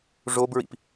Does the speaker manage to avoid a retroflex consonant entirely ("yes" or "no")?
no